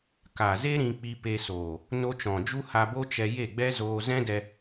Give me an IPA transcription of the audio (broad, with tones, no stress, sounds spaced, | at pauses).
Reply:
k a˨ z e˦ ɾ ĩ˧ k͡p i˧ p e˧ s oː˨ | n o˧ t͡ʃ ɔ̃˨ d͡ʒ u˦ h a˧ b o˦ t͡ʃ ɛ˧ j e˦˨ ɡ͡b ɛ˦ z oː˧ z ɛ̃˦ d ɛ˧